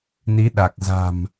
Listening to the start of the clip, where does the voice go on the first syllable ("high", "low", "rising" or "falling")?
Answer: rising